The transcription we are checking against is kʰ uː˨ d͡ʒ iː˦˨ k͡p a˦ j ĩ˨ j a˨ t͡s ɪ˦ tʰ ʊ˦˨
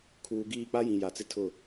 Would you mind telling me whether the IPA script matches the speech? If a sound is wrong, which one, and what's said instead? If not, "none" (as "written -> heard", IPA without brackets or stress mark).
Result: d͡ʒ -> ɡ